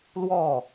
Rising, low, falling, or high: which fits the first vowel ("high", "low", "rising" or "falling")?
falling